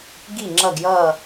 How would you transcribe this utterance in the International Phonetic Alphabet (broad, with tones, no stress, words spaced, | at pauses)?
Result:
ɡi˧˩ ŋ͡ǁʌ˧˩ɡjʌ˧˩